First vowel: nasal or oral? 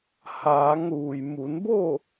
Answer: oral